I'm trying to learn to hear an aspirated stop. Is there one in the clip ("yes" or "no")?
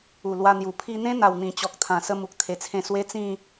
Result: yes